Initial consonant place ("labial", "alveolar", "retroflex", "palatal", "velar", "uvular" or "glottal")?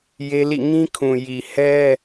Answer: palatal